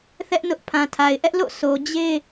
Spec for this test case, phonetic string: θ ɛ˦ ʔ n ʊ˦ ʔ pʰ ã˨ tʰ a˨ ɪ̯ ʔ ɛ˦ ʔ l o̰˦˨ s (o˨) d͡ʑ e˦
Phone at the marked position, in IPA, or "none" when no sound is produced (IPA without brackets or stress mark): o˨